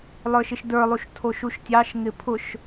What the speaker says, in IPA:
lˠ ə˞ ʃ ɪ ʃ d ə˞ lˠ u ʃ tʰ o ʃ u ʃ tʲ ɑ ʃ ŋ ɪ pʰ ʊ ʃ

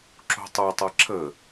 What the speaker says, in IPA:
ǁ o̤ tˤ u tˤ ɐ ǁ ə

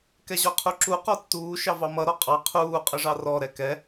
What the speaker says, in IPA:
k ɛ ʑ ɔ qʰ u ǁ u q ɔ tː uː ʃ ɑ v ɑ m ʌ ɾ ɔ qʼ ɑ qʰ uː qʼ ə ʐ ɑ r ɔ ɾ ɛ k ɛ

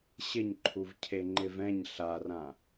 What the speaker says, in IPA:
ɕ ɪ ɲ ǃʰ u v cʰ e ŋ͡ǃ ɪ v ɛ̃ ɲ ɬ a r ã

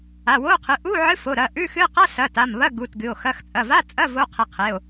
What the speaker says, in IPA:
a˩˧˩ w o˧˥˧ qʰ ɨ˩˧˩ ʔ u˧˥˧ ʕ ɨ˧˥˧ f o˩˧˩ ɾ ɐ˩˧˩ ʔ ʉ˧˥˧ x ɨ˧˥˧ q a˧˥˧ s ɐ˩˧˩ t a˩˧˩ m β ɐ˧˥˧ ɡ u˩˧˩ t ɡ ɨ˩˧˩ o̯ x ɐ˧˥˧ x t͡sʼ ɐ˩˧˩ v a˧˥˧ t͡sʼ ɐ˧˥˧ v o˧˥˧ qʰ i˩˧˩ qʰ e˩˧˩ o̯

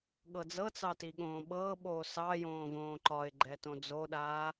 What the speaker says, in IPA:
ɠ ɤ d͡z ɤ t͡s ɑ t i ɠ õː ɓ ɤː ɓ oː s ɑ j õː v õː ǃ ɒ ɪ̯ ɡ͡ǃ ɛ t õ d͡z o ɗ aː

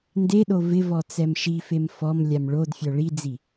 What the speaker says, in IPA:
n d e ɗ o v ɪ v ɔ t͡s ɛ m ʃ i f e m f ɔ m lʲ a m ɭ o d fʲ ɔ ɭ i d͡z i

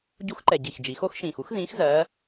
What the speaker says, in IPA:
ɟ u˧˥ x ǃ ɛ˨˩ ɟ i˨˩ x d͡ʒ i˩˧ x o˧˥ x ʃ ĩː˨˩ x u˧˥ x ð ĩː˧˥ x z ɜː˧˥

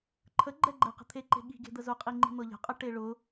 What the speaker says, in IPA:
ǃʰ ə ɡ͡ǃ ɛ ɡ͡ǃ ɛ q ə̤ t̪ʰ e ǃ e̤ ɠ i̤ ɡ e̤ d̪ ə z ʊ qʼ i ŋ͡ǃ i̤ n̪ ɤ ʎ ə̤ qʼ ə ʈ e ɭ ʊ

